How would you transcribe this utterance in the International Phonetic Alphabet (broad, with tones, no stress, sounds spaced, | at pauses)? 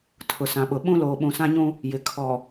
tʰ ʊ˨ s ã˨ ɓ ʊ˨ ɓ ũ˦ l oː˨ ɓ ũ˨ s ã˦ ɲ ũ˦ | j ɪ˨ kʰ ɔ˨